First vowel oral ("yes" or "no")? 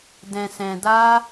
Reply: no